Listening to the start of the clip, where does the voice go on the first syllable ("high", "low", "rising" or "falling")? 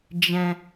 high